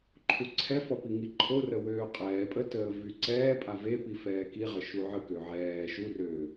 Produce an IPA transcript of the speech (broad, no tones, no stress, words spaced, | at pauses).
ǃʰuǀʰɛfɔ piŋiǃʰorə wøːqʼɛːpʼə təːvyǀɛːpʼa vepi fɛːkiʁə ʃuʕəkø ʕɛː ʃurøː